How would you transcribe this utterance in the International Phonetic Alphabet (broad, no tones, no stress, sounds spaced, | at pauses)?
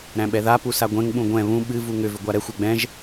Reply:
ɾ æ̃ ɓ ɛ ð a p u s a ɡʷ ɛ̃ ŋ ɓ ũ ɡʷ ɛ̃ β ũ ɓ ɨ v u ŋ ʏ v ʏ ɡʷ a ɾ ɛ xʷ ɛ ɡ͡b ɛ̃ ʒ